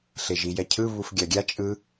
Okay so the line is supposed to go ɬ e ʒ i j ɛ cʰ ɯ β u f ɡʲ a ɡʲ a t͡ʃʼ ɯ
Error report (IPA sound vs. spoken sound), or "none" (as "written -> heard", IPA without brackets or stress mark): none